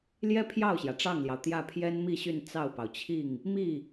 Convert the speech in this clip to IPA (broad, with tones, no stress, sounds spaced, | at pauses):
l j ɛ˥ pʰ j ɑ˥˩ ʊ̯ ɕ j ä˩ ʈ͡ʂ ɑ˥˩ ŋ l j ɑ˩ ʊ̯ t̪ j ä˥˩ pʰ j ɛ˥ n m i˥˧ ɕ y˥˧ n t͡s ɑ˥˩ ʊ̯ p ɑ˩ ʊ̯ t͡ɕʰ i˥˩ ŋ | m i˥˩